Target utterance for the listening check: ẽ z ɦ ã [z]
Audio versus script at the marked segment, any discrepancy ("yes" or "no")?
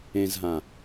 yes